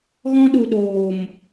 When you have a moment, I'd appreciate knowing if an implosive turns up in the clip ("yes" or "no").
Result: yes